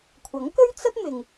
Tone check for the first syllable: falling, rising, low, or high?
rising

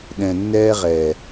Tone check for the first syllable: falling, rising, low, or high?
low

